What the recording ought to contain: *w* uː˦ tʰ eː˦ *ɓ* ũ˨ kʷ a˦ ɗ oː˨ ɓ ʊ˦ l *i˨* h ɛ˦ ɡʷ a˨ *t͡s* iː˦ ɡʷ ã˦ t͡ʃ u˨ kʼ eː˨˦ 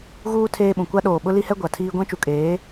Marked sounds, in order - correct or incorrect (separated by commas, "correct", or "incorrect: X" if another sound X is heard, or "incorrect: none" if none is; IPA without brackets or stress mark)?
incorrect: ɣ, correct, incorrect: i˦, incorrect: tʰ